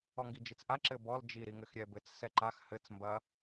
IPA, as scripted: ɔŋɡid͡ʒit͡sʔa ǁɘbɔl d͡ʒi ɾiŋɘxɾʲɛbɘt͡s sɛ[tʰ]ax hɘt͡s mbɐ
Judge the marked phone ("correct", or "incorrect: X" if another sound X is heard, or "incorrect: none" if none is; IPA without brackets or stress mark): incorrect: ǃ